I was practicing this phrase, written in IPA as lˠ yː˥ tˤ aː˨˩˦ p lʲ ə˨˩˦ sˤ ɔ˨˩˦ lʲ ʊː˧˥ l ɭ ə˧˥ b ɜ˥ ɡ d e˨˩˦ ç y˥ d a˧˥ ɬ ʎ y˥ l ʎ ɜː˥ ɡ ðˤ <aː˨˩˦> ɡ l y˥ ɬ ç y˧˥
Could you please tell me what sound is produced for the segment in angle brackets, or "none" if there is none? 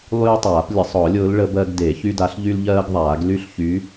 aː˨˩˦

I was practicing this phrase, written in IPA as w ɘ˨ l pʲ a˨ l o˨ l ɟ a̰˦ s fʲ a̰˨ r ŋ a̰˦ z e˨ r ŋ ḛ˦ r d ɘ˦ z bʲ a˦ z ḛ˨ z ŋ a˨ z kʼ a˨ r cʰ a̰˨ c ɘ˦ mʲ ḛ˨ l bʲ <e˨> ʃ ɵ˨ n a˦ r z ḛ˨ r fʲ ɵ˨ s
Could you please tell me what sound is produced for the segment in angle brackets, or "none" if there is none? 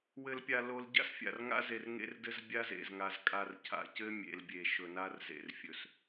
e˨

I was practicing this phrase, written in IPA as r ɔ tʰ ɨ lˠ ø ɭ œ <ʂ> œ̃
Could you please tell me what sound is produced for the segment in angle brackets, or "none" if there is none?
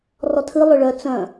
t͡s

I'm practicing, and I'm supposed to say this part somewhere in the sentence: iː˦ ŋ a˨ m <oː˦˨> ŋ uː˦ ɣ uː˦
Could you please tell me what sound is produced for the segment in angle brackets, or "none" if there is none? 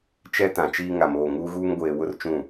oː˦˨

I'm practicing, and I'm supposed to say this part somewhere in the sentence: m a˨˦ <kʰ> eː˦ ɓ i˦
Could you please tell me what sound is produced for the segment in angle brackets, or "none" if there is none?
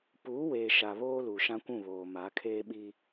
kʰ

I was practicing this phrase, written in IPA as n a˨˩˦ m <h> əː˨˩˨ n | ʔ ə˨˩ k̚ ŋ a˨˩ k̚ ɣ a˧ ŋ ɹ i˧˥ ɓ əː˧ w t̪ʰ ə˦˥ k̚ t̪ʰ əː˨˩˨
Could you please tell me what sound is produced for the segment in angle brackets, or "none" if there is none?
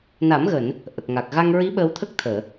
ɣ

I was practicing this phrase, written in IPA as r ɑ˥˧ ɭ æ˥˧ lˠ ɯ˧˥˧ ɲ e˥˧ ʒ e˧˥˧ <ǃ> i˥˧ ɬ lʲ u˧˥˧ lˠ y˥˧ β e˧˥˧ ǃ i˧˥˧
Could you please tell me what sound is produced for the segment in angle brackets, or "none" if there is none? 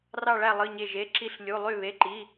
ǁ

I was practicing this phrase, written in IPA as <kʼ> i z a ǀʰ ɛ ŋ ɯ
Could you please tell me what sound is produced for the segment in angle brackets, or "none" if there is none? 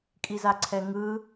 kʼ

